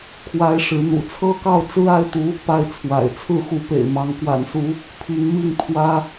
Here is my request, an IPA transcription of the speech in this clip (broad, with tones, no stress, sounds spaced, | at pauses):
kʰ w a˥ ɪ̯ ʂ ɻ̩˧˥ n̪ ṵ˨˩ t͡sʰ ɤ˥˧ k ɑ˥˩ ʊ̯ t͡s ɹ̩˥ a˥ ɪ̯ t̪ u˧˥ | p a˥˩ ɪ̯ t͡sʰ w a̰˨˩ ɪ̯ t͡sʰ ɹ̩˥˩ x u˧˥ p ḛ˨˩ ɪ̯ m ɑ˧˥ ŋ k w a̰˨˩ n s u˧˥ | pʰ i˧˥ ŋ m i˥˩ ŋ t̪ʰ w ä˥